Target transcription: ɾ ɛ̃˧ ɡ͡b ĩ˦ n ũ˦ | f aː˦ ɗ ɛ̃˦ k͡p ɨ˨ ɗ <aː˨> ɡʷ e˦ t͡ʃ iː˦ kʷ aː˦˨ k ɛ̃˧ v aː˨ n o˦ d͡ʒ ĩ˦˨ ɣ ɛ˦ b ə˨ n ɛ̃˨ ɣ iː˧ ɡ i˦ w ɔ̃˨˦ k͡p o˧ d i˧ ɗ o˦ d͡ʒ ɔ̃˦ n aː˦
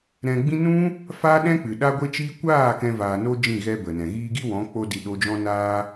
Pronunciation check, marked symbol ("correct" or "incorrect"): incorrect